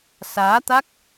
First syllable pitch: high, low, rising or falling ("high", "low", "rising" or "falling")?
rising